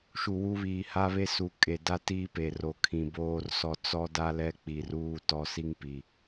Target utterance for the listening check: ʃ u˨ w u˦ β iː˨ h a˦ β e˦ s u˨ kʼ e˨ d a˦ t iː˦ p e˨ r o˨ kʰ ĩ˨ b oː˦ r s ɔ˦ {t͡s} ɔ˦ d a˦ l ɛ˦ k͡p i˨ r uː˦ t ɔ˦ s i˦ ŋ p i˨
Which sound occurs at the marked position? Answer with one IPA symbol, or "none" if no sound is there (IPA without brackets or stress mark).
t͡s